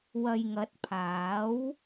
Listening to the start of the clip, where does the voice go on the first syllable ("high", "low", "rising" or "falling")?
low